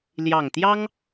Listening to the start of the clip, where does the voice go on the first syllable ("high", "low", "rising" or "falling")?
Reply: low